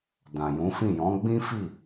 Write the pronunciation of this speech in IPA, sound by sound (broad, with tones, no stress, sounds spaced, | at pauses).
d ã˨ j ũ˨˦ f ĩ˦˨ j ɔ̃˨˦ ɡ͡b ĩ˦ f i˦˨